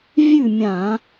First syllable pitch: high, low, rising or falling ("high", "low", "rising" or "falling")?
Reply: falling